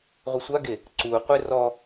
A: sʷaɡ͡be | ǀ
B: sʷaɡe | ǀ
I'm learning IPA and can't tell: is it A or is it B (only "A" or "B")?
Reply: B